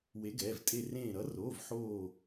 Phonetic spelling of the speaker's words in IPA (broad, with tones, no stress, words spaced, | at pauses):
we˨˦ɡɛː˩˧˩v tʼe˧˩ rẽː˧˩ɾʌ˨˦roː˩˧˩v ħoː˧˩